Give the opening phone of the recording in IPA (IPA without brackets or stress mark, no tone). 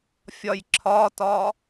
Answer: fʲ